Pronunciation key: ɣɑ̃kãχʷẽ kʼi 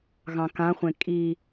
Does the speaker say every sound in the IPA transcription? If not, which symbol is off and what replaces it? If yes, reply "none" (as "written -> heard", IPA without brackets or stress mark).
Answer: none